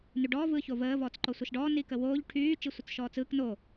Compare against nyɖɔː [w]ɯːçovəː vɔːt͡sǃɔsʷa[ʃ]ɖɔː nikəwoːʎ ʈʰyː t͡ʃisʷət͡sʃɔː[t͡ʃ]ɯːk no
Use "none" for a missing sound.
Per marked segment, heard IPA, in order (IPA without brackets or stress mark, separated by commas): v, ʃ, t͡s